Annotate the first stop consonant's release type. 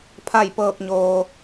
aspirated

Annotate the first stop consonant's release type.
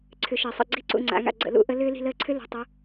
click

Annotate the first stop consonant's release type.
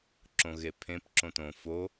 click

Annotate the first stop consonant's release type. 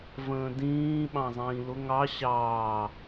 plain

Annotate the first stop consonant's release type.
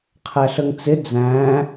aspirated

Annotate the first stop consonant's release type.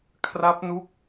aspirated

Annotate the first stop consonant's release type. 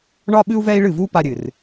implosive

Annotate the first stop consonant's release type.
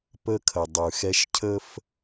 plain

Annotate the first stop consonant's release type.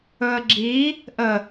click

